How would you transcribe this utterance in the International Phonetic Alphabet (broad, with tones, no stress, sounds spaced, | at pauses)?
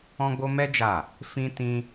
ɔ̃˦ ɡ͡b o˦ m ɛ˦ d͡ʒ a˦˨ | f ĩ˦ t ĩ˦